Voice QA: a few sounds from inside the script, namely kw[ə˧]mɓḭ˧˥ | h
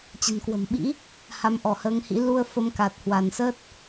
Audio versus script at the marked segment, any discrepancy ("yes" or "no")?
yes